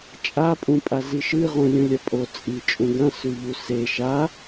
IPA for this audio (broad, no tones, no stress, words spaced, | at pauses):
t͡ʃʼapʼũ pʼaziʃɨ ʁũlʲũlʲapʼo t͡sʼi t͡ʃʼũɡɐ̃sʉʎu se ʃa